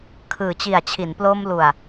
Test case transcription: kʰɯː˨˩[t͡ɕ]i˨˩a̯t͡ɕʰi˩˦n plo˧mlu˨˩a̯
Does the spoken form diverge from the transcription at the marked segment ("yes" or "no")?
no